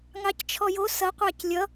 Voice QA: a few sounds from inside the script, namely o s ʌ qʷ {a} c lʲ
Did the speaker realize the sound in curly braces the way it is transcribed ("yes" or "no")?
no